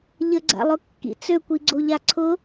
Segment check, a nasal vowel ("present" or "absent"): absent